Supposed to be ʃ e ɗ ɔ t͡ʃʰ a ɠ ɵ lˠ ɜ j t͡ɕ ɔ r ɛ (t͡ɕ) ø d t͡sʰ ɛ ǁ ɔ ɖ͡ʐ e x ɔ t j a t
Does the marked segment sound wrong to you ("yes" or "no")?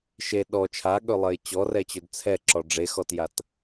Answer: no